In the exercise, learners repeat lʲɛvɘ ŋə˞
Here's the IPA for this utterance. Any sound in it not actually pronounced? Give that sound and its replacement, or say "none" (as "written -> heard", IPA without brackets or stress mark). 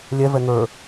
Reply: ɘ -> ɛ